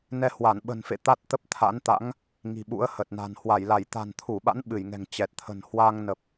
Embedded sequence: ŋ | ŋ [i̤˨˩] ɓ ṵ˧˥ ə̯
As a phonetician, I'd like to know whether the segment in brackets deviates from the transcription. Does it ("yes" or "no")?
no